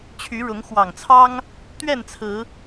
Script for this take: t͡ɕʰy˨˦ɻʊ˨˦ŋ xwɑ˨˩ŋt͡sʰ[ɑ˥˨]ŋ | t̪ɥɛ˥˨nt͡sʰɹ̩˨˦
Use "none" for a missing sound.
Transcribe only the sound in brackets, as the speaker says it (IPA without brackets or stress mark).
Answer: ɑ˦